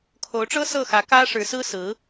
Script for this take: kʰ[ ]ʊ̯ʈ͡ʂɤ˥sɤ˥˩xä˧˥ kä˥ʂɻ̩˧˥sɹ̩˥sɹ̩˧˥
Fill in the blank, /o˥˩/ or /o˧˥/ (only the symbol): o˧˥